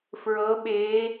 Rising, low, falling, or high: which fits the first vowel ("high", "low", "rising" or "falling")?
rising